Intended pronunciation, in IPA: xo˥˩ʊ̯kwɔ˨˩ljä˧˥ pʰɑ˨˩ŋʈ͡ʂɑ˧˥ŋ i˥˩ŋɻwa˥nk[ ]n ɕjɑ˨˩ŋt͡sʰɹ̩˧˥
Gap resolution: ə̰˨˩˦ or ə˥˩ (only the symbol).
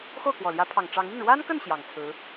ə˥˩